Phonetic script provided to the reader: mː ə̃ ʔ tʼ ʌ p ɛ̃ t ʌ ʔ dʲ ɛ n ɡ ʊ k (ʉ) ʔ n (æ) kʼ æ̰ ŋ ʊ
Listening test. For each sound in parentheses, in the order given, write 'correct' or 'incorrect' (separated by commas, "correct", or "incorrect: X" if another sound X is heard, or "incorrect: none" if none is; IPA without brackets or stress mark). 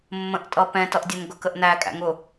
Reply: incorrect: ə, correct